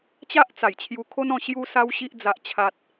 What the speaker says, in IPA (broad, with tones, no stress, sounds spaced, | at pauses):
t͡ɕ a˦ ʔ t͡s a˨˩ j t͡ɕʰ j u˧ kʰ o˦ n ɔ̃˥˧ ɕ j u˧ s a˦ w ɕ i˦ ʔ d͡z a˦ ʔ t͡ɕʰ a˦ t̚